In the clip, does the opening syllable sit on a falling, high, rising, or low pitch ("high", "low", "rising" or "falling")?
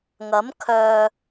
rising